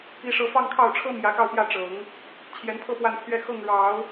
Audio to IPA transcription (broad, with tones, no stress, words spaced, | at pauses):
i˥˧ʂɤ˥˧ fɑ˥˧ŋkʰɑ˥˩ʊ̯ʈ͡ʂʰɤ˥ mjä˧˥kɑ˥˧ʊ̯pjä˥˩ ʈ͡ʂɤ˨˩˦ŋ | t͡ɕʰjɛ˧˥npʰɤ˥˧ pwa˥˧npʰɥɛ˥˧ xɤ˥˩ŋ ɻɑ˨˩˦ʊ̯